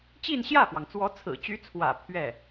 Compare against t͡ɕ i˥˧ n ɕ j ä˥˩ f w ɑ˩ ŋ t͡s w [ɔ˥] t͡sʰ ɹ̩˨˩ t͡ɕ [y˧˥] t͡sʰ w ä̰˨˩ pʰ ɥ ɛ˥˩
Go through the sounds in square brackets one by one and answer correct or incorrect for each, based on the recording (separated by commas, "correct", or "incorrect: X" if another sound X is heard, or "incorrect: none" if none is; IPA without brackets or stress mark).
incorrect: ɔ˧˥, correct